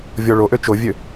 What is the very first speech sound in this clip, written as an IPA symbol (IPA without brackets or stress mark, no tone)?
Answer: vʲ